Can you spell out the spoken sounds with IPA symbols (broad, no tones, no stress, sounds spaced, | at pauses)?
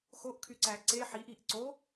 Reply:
x o ʔ kʰ y ǀ æ ǀ e ħ i ʔ iː ʔ ǀ o